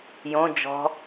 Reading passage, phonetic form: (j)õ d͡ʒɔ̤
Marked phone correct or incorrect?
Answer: correct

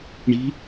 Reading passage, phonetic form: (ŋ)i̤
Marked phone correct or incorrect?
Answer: incorrect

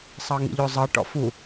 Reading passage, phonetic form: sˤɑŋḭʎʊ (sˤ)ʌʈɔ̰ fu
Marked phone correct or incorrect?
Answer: incorrect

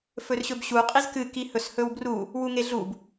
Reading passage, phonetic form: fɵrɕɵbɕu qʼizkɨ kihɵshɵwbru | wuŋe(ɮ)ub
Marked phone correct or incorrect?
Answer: correct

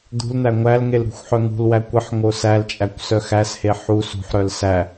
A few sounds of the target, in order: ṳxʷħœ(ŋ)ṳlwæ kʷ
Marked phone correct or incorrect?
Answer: correct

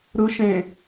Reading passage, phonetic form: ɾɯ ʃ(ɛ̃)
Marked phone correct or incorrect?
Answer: incorrect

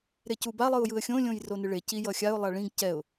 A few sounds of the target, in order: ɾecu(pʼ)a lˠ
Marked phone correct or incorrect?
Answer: incorrect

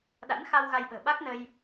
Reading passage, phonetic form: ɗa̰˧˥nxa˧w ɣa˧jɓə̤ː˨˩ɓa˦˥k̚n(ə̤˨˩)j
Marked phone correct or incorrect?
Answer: incorrect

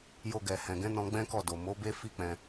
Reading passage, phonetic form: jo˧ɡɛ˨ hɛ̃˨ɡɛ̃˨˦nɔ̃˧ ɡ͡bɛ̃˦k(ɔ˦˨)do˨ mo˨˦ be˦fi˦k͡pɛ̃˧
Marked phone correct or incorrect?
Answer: correct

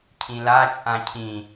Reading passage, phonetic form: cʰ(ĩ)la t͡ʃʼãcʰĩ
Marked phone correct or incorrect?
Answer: correct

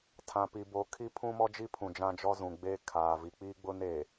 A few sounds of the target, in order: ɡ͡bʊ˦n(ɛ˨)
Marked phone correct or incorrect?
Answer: incorrect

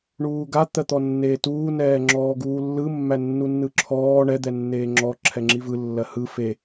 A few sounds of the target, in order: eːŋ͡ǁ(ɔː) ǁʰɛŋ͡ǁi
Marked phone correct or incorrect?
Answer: incorrect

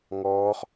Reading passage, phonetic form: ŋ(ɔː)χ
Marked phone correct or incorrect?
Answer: correct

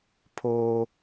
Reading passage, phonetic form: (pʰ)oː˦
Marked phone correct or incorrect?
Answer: correct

